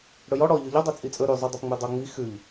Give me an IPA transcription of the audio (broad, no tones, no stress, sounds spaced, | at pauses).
ɽ ɵ j ɔ ɽ ɔ ʎ ø ʎ ɔ dˤ ø t͡sʼ i t͡sʼ ɵ ɾ y zˤ u dˤ ɵ p ŋ͡m ʉ dˤ o ŋ͡m i x ʉ ʎ